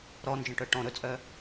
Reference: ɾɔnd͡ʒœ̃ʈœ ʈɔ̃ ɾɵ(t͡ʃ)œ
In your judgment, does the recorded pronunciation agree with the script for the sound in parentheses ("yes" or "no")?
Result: no